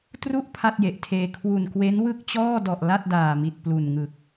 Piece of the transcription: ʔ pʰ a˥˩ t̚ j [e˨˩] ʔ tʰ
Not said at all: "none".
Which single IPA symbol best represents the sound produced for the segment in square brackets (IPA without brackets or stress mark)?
e˨˩